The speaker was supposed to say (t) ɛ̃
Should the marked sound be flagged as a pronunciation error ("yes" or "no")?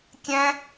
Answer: yes